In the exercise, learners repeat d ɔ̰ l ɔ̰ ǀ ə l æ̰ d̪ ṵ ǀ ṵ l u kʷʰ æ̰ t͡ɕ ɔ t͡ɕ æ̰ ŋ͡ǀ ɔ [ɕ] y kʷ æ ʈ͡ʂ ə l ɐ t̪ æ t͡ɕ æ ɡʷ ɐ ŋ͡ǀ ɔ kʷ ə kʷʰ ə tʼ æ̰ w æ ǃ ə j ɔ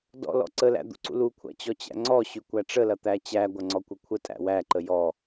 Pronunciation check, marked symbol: correct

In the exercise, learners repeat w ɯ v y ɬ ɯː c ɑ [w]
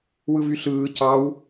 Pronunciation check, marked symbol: correct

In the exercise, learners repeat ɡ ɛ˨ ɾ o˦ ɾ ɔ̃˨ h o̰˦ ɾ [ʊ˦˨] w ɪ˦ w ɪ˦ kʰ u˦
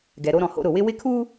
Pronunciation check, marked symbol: correct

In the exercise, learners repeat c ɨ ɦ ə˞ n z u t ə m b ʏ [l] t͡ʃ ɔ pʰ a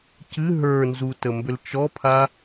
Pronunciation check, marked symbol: correct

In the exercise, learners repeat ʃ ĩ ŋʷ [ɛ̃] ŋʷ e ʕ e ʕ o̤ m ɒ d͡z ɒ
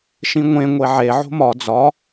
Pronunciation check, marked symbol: incorrect: ẽ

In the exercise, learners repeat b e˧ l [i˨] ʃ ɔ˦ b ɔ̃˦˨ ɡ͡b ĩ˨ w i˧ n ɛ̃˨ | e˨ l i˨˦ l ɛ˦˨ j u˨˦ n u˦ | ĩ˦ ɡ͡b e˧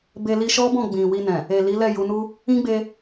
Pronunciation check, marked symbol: incorrect: i˧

